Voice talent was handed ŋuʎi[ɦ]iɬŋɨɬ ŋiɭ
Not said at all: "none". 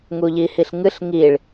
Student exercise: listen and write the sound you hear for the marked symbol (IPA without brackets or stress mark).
h